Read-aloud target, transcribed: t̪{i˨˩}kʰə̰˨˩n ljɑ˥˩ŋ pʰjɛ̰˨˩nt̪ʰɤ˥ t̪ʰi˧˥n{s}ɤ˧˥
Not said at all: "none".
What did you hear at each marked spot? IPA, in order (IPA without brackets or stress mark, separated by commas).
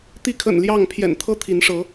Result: i˧˥, ʂ